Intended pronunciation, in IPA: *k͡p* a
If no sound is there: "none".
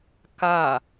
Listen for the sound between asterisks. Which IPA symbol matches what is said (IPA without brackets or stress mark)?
k